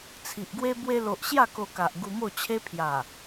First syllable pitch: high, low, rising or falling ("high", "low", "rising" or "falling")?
low